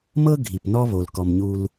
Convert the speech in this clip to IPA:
mɤ˦ ɡʱi˨pnɔ˦βo˨lkɔ˨m ɲu˦l

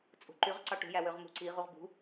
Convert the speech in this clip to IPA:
t͡sʼṳǃyʁǀɑ ʈṳjæwøʁ mṳǀi ʁuʁbṳ

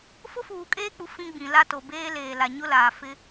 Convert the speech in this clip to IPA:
fʊ˦fuː˨kʼeː˦k͡pu˨ fĩ˦ɡ͡bĩ˨ la˦to˨ beː˦ leː˨la˨ ɲʊ˦laː˨ fɪ˦

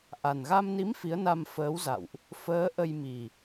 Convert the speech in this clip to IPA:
ʔa˨˩nɣa˧mni˨˦m fi˨˦ə̯na˧mfəː˨˦wza̰˧˨wʔ | fəː˨˦ʔə˧jmi˨˩

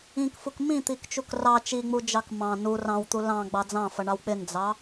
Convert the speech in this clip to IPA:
ĩkfuk mĩt̪ikt͡ʃuk rɑ t͡ʃiŋ͡mud͡ʒɑk mɑ̃ nu rɑ̃wt̪u lɑ̃ɡ͡bɑ d͡zɑ̃fʌɳɑw k͡pɪnd͡zɑ

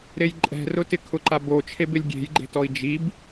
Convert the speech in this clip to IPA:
ɾejǃʼɛ̤rʊtɪ kʰʊǃabot͡ʃʰeb ɪlʲɡʲe̤jɡ͡ǃe̤ tɔi̯d͡ʒib

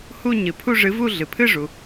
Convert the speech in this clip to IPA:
hu˥˧ ɲɨ˩ pʰu˥˧ʐɨ˨˥vu˥˧ ɮɨ˩pʰɨ˥˧ ʐu˩

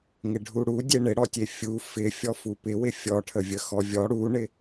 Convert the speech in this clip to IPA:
ŋɪɖʱuɽu dʲeɳɪɽɔtʲe fʲu fɪ fʲɔfupɪwɪ fʲɔʈʰəvʲəxɔ vʲɔ ɽuɳɪ

